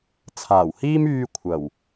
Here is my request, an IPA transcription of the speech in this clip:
t͡sʰ aː˨˩ w h iː˥ m yː˧ kʷʰ ɐ˨˩ w

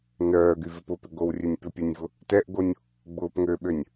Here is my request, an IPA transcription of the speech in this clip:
n œː ɡ y v ɪ p ʊ p ʏ ɡ o w rʲ ø nʲ p ʏ pʲ ɛ nʲ v ʊ | t ɛ ʔ ɡ o nʲ | ɡ͡b ʊː p ŋ ø ɓ ø nʲ

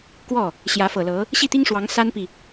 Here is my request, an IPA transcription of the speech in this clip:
k w ɔ˥˩ | ɕ j ä˧˥ f ɤ˨˩ l ɤ˧˥ | ɕ i˥˩ t̪ i˥ ŋ ʂ w ɑ˧˥ ŋ s a˥ n p i˨

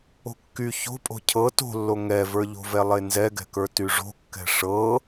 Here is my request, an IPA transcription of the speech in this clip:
o̤ kː y ç o̤ pʼ o̤ cʰ ɤ t o̤ lː o ŋ ɛ v ə˞ ʎ o̤ v ɛ lˠ e n z ɛ ɡ ɛ̤ k ə˞ t y ʐ o̤ kː ɛ̤ ʂ ɤ

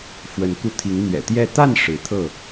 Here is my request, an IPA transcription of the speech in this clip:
f w ə˨˦ n k u˧ t̪ʰ i˨˦ ŋ n̪ ɥ ɛ̰˨˩ t̪ j ɛ˥˨ t̪ a˥˨ n ʂ ɻ̩˨˦ t̪ʰ ɤ˥˨

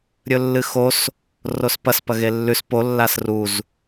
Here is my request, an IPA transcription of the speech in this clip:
ɾʲ ɵ lː ɨ x o s | r o s p ɐ s p ɐ ɣ e lː ʉ s p o lː a s r u z

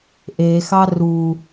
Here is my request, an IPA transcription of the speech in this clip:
ʔ e x ɑ r u

